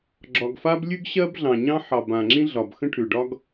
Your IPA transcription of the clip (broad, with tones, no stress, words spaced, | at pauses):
ɡ͡ǁɒ˩ɡfa˥b lʲʉ˥ɡɕɜ˥bɮɑ̃˩ɲɑ̃˥ ħɑ˩b ã˩ŋ͡ǁĩ˥ɮɒ˩b xə̃˥ʈʰʉ˩ ɖɒ˥ɡ